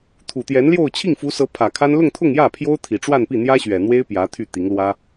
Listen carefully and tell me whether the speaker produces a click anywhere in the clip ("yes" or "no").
no